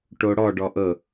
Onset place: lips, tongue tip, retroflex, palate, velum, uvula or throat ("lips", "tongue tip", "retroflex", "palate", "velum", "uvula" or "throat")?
retroflex